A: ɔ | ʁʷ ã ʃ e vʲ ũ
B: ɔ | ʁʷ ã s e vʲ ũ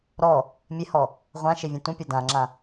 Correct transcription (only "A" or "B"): A